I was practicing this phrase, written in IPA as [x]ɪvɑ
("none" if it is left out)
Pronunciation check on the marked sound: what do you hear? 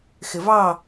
x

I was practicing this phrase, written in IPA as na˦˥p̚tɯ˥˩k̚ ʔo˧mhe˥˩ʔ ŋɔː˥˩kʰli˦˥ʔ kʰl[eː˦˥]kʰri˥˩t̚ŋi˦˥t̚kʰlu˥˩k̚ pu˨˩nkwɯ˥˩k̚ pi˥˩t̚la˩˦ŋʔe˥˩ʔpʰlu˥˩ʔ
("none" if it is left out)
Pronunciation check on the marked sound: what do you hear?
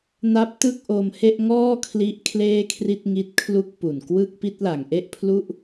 eː˥˩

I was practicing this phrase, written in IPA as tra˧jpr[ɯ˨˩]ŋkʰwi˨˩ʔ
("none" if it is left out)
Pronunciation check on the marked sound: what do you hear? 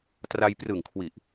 ɯ˨˩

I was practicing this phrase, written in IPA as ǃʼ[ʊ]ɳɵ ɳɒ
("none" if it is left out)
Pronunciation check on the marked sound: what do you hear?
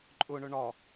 ʊ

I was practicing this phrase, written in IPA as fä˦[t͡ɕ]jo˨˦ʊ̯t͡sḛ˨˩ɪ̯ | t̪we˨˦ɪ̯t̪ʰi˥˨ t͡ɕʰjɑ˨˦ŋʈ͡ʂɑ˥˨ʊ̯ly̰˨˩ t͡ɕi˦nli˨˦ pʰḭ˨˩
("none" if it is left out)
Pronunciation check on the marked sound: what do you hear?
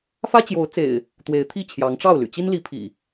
t͡ɕ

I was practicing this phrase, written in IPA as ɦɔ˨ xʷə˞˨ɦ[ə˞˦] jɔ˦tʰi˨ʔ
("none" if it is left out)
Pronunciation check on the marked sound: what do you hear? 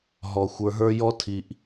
ə˞˦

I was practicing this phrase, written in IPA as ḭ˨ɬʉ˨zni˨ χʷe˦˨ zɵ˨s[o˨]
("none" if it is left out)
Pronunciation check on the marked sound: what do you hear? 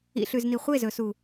u˨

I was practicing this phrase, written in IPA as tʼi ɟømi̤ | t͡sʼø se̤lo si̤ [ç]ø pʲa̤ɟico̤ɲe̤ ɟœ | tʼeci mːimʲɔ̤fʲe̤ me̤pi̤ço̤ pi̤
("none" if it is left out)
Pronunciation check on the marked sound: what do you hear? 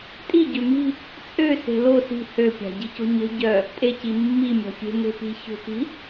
h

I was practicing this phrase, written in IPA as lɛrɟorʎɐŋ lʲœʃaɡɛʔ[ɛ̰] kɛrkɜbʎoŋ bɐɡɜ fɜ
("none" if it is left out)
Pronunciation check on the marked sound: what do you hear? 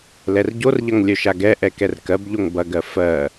ɛ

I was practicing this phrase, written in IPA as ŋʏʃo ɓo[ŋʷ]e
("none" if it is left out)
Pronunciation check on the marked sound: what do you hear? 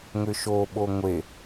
ŋʷ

